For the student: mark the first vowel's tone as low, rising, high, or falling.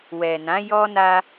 low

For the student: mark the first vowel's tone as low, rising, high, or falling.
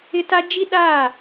high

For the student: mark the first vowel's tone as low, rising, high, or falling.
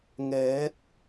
rising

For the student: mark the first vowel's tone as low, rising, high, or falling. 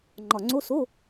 low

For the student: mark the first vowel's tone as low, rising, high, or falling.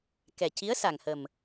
low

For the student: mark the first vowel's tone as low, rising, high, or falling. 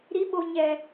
rising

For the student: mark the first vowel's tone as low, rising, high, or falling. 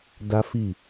high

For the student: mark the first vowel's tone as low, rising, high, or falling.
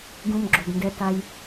low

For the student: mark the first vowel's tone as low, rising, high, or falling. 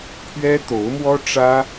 high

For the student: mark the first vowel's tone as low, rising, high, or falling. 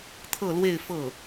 falling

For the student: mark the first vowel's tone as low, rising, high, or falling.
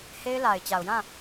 high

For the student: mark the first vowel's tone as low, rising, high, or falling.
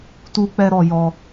high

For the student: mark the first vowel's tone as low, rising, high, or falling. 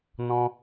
high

